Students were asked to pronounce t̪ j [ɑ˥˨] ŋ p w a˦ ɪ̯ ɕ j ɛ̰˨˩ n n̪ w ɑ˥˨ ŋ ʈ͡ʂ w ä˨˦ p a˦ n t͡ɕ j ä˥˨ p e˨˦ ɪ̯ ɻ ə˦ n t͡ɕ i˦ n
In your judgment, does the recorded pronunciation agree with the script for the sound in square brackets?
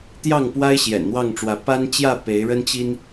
yes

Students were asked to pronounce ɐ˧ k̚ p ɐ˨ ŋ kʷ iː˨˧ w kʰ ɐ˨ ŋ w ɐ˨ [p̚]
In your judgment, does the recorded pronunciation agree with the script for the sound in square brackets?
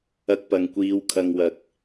no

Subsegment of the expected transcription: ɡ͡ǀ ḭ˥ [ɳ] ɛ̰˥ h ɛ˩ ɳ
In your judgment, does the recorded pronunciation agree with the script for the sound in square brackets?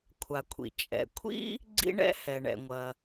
yes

